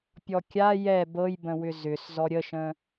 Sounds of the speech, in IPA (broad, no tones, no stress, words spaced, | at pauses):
pʲɔkʲa jɛ bɤjbə̃ wʏzʏs zɔɾʲəʃə̃